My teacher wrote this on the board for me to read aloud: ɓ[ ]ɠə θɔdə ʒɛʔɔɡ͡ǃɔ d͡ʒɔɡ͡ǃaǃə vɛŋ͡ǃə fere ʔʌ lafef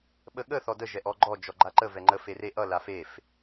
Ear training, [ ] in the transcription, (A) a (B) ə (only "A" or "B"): B